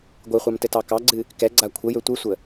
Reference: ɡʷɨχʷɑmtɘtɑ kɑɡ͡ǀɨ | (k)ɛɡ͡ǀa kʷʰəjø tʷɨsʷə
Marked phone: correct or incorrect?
correct